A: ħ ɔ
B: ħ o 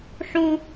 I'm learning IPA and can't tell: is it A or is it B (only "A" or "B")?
B